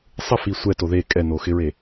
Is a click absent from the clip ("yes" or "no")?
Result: yes